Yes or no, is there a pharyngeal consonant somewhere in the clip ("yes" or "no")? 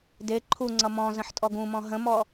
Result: yes